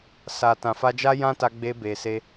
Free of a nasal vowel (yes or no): no